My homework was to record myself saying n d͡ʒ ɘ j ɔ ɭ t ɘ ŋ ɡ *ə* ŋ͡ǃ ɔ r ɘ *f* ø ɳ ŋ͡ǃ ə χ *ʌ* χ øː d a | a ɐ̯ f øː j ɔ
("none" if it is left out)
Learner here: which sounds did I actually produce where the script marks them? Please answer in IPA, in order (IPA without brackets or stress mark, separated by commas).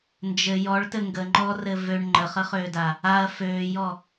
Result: ə, v, ə